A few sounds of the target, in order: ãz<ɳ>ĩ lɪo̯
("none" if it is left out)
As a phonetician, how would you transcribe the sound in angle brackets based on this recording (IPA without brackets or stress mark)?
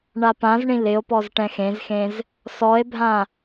ɳ